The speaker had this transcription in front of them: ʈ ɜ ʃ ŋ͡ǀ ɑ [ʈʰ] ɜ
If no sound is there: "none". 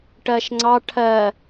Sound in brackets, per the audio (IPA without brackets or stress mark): ʈʰ